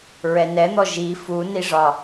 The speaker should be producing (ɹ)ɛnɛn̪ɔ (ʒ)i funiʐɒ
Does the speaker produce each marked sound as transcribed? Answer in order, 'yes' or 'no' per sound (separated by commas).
yes, yes